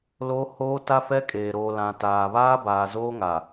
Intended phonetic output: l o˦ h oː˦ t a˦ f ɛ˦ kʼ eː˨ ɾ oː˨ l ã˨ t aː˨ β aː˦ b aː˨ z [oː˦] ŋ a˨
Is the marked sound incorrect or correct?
correct